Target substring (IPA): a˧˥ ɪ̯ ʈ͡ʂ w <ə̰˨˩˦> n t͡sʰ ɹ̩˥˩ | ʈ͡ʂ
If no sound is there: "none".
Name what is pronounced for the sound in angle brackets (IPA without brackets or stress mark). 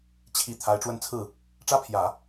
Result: ə˥˧